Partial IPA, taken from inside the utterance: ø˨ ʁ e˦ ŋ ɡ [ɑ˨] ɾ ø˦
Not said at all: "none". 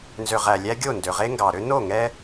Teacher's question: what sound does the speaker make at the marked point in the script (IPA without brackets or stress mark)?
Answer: ɑ˨